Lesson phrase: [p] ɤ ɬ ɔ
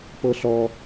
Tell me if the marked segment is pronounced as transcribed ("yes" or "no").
yes